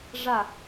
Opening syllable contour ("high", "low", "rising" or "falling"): falling